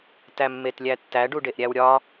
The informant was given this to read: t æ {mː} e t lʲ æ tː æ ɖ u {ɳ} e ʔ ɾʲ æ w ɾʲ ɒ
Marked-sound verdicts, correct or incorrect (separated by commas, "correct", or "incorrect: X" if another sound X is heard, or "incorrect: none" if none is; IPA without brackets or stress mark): correct, incorrect: ɖ